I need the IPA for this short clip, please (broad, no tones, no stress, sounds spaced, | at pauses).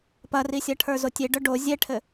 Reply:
p ɐ r i sʲ ɐ ʈʰ ə˞ z o tʲ e ɖ œ ɖ o zʲ ɛ ʈʰ ɘ